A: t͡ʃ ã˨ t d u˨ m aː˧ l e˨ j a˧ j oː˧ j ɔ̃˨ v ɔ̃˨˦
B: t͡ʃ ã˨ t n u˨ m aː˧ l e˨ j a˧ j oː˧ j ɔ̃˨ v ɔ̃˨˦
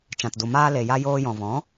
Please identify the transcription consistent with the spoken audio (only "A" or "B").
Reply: A